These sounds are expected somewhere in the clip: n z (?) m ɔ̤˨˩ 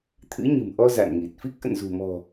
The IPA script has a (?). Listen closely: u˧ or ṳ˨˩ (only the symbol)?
ṳ˨˩